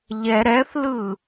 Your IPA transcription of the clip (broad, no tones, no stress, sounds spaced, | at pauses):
ʎ ɛ ɾ ɛ θ l ɯ